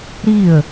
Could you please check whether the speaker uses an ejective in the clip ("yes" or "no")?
no